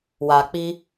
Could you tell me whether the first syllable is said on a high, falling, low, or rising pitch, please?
low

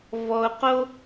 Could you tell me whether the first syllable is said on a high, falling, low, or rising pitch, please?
low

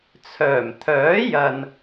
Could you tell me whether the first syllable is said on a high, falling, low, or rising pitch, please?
low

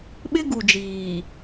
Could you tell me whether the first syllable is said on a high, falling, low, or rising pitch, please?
high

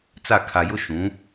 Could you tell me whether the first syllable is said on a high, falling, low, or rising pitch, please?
falling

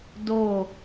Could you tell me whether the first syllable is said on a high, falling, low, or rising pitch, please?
falling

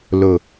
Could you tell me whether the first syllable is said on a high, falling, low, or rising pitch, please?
low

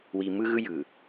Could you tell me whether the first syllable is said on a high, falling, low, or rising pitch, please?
low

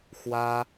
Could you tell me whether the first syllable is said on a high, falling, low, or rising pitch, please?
high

